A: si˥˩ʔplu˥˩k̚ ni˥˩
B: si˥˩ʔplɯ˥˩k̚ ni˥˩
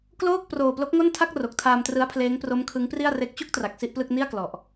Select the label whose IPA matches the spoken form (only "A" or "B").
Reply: B